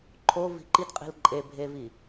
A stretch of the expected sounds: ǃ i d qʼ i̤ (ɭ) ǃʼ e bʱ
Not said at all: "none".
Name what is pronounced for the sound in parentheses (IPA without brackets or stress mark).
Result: l